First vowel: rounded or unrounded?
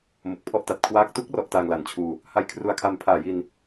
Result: rounded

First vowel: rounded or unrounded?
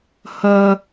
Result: unrounded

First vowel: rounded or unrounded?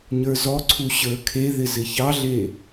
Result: unrounded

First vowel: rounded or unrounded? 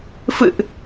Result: unrounded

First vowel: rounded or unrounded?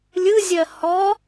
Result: unrounded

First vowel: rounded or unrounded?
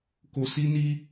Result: rounded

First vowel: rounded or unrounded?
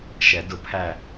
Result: unrounded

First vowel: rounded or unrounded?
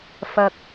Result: unrounded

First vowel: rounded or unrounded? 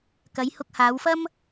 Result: unrounded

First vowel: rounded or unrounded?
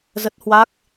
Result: unrounded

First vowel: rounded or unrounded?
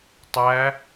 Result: unrounded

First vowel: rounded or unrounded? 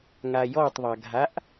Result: unrounded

